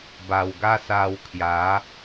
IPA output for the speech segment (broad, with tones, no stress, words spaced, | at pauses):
ba˨˩wɡa˦sa˧w kʰja˨˦